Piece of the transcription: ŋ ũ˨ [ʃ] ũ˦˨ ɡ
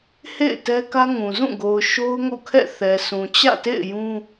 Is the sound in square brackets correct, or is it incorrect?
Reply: incorrect